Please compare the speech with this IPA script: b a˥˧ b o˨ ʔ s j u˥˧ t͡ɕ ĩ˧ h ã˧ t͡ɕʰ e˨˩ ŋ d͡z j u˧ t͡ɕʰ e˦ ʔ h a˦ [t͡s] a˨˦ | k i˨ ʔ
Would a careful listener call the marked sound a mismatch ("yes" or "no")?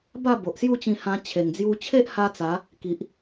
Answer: no